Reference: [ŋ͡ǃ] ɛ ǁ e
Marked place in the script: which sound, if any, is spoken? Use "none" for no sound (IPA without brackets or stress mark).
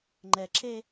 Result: ŋ͡ǃ